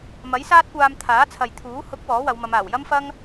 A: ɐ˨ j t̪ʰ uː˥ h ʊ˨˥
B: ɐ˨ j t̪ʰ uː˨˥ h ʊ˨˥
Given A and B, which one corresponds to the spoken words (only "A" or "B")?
B